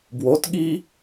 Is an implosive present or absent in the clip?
present